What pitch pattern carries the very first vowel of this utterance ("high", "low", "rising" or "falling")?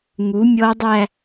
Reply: rising